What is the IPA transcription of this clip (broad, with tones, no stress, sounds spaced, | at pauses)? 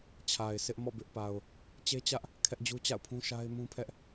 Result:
t͡ɕʰ a˨ ɪ̯ s ɪ˦ ʔ m ɔ̰˦˨ b ɪ˦ ʔ p a˨ ʊ̯ | t͡ɕ e˦ t͡ɕ ä˦ ʔ | kʰ ɛ˦ ʔ d͡ʑ u˦ t͡ɕ a̰˦˨ ʊ̯ pʰ ũ˦ ʃ a˦ ɪ̯ m ũ˦ pʰ ɛ˦ ʔ